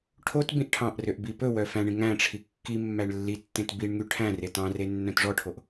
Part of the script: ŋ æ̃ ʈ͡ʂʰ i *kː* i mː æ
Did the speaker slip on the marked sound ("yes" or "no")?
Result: no